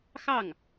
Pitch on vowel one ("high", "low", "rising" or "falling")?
falling